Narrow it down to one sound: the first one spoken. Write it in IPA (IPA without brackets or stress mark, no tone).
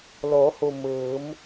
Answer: l